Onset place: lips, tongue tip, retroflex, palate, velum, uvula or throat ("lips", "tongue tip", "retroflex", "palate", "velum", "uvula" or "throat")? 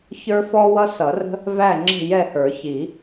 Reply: palate